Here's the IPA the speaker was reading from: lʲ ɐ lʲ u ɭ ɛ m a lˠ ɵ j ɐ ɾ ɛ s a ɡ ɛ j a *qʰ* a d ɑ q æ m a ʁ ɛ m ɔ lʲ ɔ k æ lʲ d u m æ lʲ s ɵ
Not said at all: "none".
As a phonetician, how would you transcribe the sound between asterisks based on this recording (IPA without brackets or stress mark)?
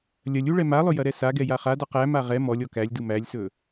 χ